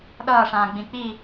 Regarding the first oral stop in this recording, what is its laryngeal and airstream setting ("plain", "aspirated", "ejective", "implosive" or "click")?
implosive